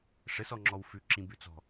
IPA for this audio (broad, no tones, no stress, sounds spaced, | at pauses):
ʂ ɘ s ɔ ŋ͡ǁ ɔ w f ʉ ǁ ĩ b ʉ t͡s ɔ̤